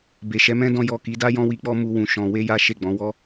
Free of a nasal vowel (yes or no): no